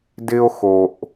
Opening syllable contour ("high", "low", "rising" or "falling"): high